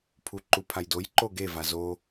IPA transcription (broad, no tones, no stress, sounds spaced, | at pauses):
pʰ u ǃ u pʰ a j d o j ǃ o ɡ e v a z o